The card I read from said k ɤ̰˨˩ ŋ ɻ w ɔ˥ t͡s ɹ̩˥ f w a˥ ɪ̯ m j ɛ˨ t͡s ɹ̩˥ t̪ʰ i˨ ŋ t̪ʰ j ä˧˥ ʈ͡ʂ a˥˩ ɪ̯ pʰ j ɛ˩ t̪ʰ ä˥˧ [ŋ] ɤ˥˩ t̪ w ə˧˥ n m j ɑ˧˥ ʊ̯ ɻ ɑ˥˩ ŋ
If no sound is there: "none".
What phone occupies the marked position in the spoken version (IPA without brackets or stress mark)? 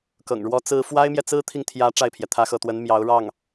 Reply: x